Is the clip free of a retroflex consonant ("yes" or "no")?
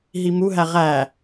yes